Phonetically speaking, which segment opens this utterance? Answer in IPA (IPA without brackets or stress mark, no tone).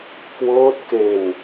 k